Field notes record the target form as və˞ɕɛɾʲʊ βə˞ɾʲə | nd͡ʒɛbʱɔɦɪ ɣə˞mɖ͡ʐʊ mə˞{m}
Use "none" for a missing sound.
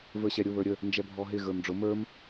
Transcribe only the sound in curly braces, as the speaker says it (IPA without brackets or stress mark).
m